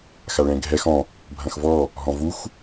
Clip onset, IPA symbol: x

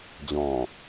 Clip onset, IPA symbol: d͡ʑ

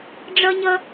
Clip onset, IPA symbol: ɖ͡ʐ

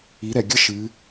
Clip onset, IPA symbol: i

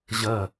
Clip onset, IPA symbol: ʑ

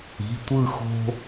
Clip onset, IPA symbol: i̤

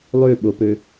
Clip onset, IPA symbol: lˠ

